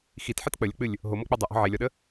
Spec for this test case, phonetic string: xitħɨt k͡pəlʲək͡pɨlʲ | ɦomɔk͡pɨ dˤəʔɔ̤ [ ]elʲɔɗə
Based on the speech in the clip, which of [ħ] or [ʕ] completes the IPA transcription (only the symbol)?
ʕ